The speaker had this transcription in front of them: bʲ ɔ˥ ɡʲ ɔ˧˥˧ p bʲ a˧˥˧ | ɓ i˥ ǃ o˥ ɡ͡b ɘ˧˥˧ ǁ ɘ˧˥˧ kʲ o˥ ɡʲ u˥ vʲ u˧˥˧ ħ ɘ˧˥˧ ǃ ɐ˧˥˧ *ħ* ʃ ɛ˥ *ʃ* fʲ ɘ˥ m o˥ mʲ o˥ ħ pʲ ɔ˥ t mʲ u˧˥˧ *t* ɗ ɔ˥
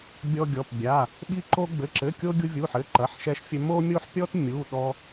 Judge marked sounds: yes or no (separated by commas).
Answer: yes, yes, no